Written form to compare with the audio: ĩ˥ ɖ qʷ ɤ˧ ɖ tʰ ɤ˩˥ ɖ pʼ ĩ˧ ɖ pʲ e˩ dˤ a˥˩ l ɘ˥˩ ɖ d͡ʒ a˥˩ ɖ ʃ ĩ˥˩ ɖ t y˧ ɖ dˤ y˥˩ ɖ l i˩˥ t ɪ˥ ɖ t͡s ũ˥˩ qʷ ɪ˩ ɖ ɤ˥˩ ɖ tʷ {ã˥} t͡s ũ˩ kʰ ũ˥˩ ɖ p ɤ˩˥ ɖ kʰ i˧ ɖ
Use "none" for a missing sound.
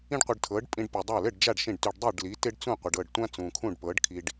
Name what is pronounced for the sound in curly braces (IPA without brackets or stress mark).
ã˥